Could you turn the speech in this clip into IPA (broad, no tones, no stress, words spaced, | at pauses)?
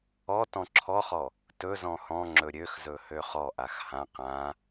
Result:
ɔ tɔ̃ǁʰɔχɔ | tɵ zɔ̃hɔ̃ŋ͡ǁɵ ɾʲøxzɵ høχɔʔax hã qã